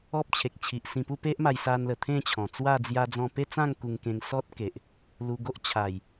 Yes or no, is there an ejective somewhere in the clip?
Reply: no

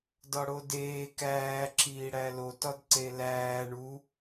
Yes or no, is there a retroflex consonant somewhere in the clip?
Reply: yes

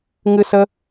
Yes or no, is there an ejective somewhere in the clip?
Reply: no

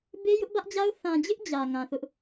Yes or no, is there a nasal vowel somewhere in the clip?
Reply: yes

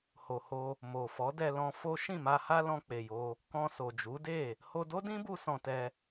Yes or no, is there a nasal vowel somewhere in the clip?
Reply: yes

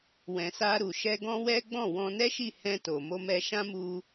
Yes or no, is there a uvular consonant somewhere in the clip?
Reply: no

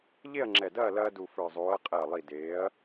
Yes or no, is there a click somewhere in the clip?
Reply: yes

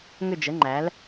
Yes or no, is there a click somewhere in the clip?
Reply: yes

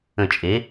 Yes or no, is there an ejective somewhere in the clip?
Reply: yes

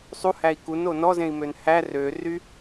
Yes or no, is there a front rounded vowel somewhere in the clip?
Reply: yes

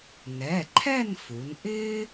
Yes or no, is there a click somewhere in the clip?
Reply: yes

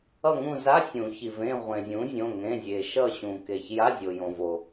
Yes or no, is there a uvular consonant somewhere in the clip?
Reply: yes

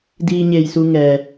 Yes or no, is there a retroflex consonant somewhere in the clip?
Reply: no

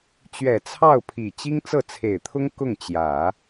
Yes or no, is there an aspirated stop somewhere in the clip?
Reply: yes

